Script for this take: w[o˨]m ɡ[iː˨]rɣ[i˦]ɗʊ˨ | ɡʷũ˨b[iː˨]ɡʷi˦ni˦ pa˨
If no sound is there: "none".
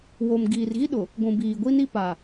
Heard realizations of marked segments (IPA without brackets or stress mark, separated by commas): o˨, iː˨, i˦, iː˨